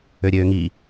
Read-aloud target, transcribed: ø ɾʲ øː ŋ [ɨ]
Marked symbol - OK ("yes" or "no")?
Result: no